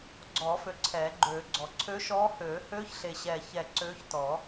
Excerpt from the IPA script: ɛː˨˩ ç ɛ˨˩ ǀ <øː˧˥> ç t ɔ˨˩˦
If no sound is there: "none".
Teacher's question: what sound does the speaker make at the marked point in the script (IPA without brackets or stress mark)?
øː˧˥